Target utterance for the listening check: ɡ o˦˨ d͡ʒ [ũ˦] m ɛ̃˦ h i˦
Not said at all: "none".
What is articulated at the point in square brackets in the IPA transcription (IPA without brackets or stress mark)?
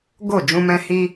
ũ˦